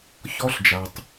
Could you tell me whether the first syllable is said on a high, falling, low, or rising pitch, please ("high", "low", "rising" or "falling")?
high